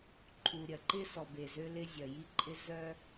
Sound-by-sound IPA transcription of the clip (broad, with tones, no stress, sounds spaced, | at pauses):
ǃʰ u˩ ɾʲ ɐ˩ ǃ ɪ˥ s ɔ˩ b e˩ z ø˥ l ɪ˥ zʲ ɐ˩ j i˥ ǃʼ ɪ˥ z œ˥